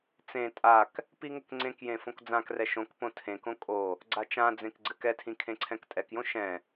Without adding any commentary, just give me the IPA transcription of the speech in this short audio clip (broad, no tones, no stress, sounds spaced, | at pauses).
t͡s ẽ tʼ a k | p i ŋ ɘ k ŋ͡ǀ ẽ k j ẽ f õ k d͡z ã k r ɛ ʃ õ k p õ tʰ ẽ k õ kʼ o | ɡ͡ǀ a t͡ʃ ã d͡z ẽ k ɡ͡ǀ ɘ k ɛ tʰ ĩ kʰ ẽ ǀʰ ɛ̃ k tʼ ɛ k j õ ʃ ɛ̃